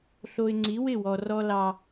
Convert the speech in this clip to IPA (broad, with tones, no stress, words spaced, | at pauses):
ɬo˨ɪ̯ ŋ͡ǀi˨˦wɪ˦˨wɔ˨ rɔ˦lɑ˦